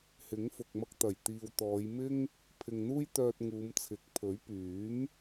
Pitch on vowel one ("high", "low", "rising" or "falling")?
rising